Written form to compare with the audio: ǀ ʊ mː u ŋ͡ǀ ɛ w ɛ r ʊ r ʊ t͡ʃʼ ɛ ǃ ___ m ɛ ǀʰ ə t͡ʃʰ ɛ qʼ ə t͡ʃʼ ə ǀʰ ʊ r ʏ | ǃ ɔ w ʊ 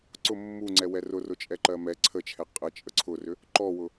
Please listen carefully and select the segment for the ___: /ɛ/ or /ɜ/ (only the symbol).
ɜ